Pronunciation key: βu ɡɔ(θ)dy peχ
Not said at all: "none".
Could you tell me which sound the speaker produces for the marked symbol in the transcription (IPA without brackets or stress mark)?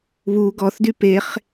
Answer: θ